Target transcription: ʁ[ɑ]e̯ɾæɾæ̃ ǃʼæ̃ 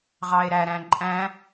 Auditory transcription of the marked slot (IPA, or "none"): ɑ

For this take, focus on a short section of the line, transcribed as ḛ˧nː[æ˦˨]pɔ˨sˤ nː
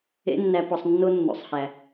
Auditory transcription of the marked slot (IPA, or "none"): æ˨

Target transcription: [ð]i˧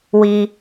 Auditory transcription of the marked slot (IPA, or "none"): w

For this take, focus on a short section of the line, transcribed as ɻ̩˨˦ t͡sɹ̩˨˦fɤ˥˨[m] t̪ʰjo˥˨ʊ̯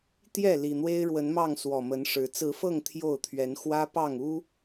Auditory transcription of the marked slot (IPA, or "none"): ŋ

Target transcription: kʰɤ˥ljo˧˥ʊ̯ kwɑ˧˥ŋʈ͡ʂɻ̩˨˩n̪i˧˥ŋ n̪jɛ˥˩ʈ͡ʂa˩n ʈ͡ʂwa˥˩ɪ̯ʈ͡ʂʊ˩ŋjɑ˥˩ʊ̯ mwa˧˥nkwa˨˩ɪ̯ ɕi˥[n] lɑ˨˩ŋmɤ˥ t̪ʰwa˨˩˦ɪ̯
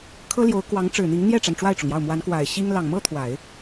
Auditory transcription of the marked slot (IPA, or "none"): ŋ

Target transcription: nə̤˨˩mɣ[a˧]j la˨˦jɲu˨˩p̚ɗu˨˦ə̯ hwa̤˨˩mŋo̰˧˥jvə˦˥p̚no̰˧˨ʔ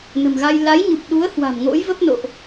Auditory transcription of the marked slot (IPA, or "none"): a˧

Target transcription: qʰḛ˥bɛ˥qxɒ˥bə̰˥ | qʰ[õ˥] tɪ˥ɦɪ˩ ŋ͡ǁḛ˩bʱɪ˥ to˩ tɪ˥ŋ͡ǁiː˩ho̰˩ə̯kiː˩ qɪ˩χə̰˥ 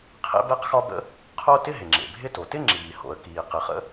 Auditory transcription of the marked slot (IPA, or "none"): o˥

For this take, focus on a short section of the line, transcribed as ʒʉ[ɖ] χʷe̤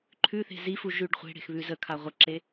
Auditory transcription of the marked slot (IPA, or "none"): ɖ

